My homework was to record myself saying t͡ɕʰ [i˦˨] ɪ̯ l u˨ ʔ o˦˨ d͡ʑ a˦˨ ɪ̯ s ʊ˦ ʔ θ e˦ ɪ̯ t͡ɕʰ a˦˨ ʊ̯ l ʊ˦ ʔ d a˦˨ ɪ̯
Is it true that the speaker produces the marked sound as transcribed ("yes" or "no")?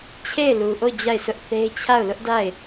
no